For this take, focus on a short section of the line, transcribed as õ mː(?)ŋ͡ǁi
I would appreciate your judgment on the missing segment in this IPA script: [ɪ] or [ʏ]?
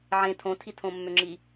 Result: ʏ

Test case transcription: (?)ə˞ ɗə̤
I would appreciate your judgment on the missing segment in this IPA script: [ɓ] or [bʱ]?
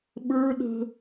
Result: ɓ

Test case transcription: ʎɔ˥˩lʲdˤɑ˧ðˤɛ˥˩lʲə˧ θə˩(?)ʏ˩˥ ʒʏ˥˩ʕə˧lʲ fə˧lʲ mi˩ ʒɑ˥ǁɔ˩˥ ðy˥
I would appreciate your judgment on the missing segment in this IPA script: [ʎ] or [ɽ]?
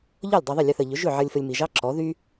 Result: ʎ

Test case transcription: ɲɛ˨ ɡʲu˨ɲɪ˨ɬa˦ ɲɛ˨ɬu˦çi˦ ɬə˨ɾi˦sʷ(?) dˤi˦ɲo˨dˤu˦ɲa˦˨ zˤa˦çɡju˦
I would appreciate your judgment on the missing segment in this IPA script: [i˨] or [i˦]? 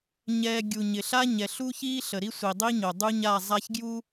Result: i˨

